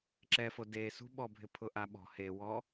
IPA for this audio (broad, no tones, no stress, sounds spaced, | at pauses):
ǁ ɛ f o d e s ṳ ɓ ɔ bʱ ɪ pʰ ʊ ʔ a ɓ ɔ̤ h e w ɔ